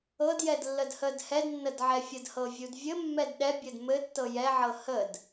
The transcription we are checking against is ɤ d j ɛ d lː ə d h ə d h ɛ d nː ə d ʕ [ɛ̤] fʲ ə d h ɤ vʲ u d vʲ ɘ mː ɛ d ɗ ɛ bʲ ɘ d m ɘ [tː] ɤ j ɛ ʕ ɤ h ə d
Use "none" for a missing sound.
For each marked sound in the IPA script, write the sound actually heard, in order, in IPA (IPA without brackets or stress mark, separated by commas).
ɛ, tː